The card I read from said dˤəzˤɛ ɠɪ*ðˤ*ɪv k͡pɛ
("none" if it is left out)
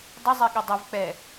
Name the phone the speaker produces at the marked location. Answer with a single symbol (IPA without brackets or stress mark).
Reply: dˤ